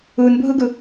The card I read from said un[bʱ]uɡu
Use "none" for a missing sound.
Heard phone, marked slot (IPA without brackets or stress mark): bʱ